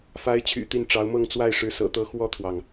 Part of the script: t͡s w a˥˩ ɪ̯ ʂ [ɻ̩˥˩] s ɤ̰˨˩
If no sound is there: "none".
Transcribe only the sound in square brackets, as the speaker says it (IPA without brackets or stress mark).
ɻ̩˧˥